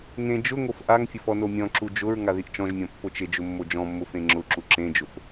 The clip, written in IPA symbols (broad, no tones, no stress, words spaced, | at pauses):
ŋẽ d͡ʒʊ ŋofʔaŋfʲʊf ɔnomʲɔ̃ǁu d͡ʒʊɹ ŋaðiʔt͡ʃɔ̃ʒmʲɔ̃ pːot͡ʃɪd͡ʒʊ mːod͡ʒɔ̃mːʊ fẽŋ͡ǁʊǁu ǁẽd͡ʒʊf